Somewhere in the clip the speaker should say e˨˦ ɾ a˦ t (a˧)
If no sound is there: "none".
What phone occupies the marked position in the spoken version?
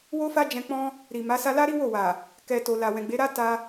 a˧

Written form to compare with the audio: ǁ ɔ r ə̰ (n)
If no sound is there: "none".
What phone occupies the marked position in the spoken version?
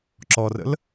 l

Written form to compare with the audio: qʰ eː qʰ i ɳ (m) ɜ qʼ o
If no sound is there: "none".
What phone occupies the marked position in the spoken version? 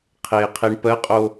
p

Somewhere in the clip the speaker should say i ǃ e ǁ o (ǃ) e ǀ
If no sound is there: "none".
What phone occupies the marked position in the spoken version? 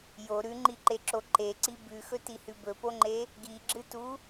ǃ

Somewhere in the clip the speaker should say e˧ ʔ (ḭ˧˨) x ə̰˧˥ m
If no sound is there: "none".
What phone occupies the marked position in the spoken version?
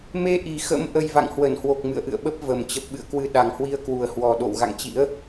i˨˩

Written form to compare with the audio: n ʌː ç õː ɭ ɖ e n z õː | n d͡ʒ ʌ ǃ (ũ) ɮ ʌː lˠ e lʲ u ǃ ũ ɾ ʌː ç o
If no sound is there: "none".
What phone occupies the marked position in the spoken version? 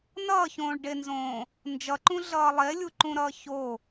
ũ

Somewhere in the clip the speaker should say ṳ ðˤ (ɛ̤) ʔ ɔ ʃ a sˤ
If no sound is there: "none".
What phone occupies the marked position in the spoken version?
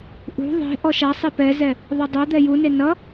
e̤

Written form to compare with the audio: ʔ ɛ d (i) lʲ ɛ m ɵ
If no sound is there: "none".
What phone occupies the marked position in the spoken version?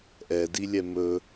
i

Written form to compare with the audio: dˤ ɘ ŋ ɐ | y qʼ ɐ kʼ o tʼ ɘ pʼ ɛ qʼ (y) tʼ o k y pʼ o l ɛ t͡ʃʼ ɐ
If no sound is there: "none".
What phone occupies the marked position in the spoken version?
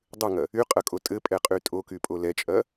y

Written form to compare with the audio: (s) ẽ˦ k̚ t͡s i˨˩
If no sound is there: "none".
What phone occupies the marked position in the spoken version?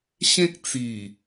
ɕ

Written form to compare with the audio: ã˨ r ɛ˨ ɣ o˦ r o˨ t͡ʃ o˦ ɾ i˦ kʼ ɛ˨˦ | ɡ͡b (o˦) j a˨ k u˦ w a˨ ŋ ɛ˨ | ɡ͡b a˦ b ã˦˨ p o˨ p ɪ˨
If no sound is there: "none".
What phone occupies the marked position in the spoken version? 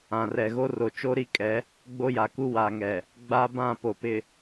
o˦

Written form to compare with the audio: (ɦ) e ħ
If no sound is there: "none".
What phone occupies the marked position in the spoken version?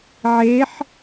ʕ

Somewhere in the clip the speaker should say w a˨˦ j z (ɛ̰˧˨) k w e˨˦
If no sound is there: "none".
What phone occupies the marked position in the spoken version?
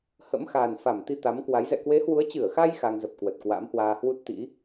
ɛ̰˧˨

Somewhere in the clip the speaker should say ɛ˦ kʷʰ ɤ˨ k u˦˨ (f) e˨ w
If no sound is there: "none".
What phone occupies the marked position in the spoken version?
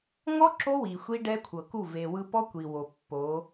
v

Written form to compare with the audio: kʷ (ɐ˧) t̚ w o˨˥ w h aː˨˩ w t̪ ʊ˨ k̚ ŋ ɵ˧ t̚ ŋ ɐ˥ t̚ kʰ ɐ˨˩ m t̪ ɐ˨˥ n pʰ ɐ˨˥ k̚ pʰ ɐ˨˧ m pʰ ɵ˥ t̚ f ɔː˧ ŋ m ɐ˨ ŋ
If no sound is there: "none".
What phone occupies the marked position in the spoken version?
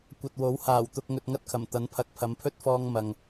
ɐ˨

